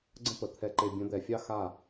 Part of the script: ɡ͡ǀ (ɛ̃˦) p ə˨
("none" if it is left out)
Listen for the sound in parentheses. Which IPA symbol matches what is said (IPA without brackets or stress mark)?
ə̃˦